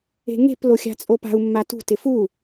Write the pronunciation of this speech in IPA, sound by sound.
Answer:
e̤ ŋ e̤ p l o xʲ a̤ t͡sʼ o p a̤ u̯ mː a t ṳ t ɪ f u

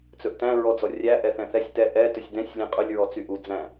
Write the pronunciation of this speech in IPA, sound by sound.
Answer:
t͡s ɵ ʔ t æ̃ ɹ ɔ d͡z ɔ rʲ æ ʔ ɛ θ ɛ̃ θ ɛ sʲ t ɛ ʔ ɛ t ɵ sʲ d ɛ̃ sʲ lʲ ɛ̃ qʼ ɵ lʲ ɹ ɔ t͡s y ʔ u d͡z æ̃

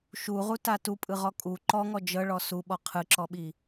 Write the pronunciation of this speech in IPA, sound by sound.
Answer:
ʃ u ʁ u t a t u pʼ ɯ ʁ ɔ kʼ u ǃ ɔ ŋ ɔ d͡ʒ ɤ ɭ ɔ s u ɓ ɔ qʰ ɯ ǁ ɔ ɓ i

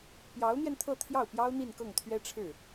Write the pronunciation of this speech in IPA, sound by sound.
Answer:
p j ɑ˧˥ ʊ̯ n̪ j ɛ˧ n t̪ʰ ɤ˥˧ t̪ʰ j ɑ˥˩ ʊ̯ p j ɑ˥ ʊ̯ n̪ i˥˧ n k ɤ˥˩ ŋ t̪ʰ ɥ ɛ˥ ʈ͡ʂʰ ɻ̩˥˩

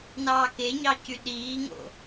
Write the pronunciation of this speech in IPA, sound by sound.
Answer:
n ɑː k e ɲ ɑ c y ɗ iː ŋ o̰

